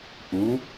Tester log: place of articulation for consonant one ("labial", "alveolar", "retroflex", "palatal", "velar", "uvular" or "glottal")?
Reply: glottal